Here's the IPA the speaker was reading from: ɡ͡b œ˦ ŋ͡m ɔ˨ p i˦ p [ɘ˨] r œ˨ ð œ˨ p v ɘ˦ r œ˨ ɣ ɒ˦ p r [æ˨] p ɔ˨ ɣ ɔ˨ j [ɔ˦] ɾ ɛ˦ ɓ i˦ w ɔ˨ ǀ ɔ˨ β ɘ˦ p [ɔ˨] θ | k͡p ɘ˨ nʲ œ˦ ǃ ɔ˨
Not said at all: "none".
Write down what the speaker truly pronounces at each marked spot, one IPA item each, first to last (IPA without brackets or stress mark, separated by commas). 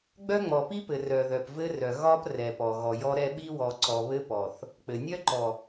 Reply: ɘ˨, ɛ˨, ɔ˦, ɔ˨